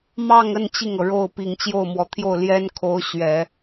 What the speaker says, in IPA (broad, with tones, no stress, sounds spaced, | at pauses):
m ɑ˥˧ ŋ ə˥˧ n t͡ɕ i˥˩ ŋ ɤ˩ ɻ o˥˩ ʊ̯ p i˨˩ ŋ t͡ɕ j o˥˩ ʊ̯ m w ɔ˨˩ t̪ʰ j o˥˩ ʊ̯ l j ɛ˥ n kʰ o˧˥ ʊ̯ ɕ ɥ ɛ˨˩˦